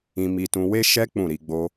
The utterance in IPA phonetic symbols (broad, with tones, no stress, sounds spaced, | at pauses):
ĩ˧ m i˧ t ũ˧ w e˦ ʃ ɛ˦ k͡p ũ˦˨ ɾ i˧ ɡ͡b o˧